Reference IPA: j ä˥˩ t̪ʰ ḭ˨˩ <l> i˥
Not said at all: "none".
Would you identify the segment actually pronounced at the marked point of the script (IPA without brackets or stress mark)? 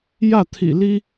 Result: l